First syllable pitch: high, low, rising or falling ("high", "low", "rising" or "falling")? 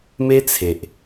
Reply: high